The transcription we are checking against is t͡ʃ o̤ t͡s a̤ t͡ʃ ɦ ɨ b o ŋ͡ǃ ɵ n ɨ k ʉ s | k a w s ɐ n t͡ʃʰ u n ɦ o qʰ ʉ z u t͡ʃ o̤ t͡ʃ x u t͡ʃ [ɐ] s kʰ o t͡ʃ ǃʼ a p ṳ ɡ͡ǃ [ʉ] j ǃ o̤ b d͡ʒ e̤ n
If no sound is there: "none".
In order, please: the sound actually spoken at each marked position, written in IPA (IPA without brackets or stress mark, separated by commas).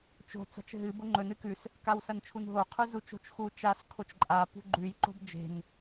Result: a, ʉ